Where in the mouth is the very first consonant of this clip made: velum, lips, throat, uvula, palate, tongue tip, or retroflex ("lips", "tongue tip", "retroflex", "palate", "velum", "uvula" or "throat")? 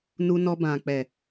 tongue tip